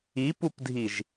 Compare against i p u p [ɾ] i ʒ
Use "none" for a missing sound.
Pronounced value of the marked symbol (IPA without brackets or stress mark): dʱ